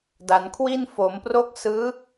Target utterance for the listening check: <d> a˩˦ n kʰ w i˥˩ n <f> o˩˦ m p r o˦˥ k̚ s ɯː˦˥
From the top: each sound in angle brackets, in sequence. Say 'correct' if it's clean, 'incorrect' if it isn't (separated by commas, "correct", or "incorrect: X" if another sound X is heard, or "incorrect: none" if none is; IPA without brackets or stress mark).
correct, correct